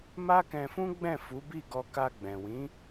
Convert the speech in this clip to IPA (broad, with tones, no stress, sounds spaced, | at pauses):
m a˦ k ɛ̃˧ f ũ˦ ɡ͡b ɛ̃˦˨ f u˨˦ b i˦˨ ɡ ɔ˧ k a˧ ɡ͡b ɛ̃˨ w ĩ˨˦